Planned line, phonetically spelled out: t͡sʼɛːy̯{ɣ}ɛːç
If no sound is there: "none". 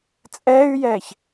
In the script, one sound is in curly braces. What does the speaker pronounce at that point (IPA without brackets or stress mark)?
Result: j